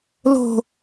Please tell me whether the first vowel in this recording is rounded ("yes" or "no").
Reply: yes